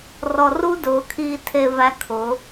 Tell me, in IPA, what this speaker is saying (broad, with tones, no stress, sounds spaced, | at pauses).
r ɔ˨ r u˦ d ʊː˨˦ kʰ iː˧ tʰ e˧ v æ˧ kʰ ʊ˨˦